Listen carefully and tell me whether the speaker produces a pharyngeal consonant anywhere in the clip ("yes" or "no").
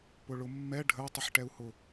yes